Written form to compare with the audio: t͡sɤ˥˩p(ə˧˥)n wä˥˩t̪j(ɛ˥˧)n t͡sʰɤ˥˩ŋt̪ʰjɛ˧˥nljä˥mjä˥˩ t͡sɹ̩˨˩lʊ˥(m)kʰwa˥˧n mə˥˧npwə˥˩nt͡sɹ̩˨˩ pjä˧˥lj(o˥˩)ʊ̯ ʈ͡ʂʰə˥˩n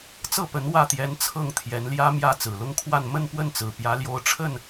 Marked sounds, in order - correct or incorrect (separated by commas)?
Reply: correct, incorrect, incorrect, incorrect